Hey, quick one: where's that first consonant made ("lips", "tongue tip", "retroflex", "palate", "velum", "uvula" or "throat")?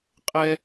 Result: uvula